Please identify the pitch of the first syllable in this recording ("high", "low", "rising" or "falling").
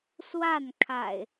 falling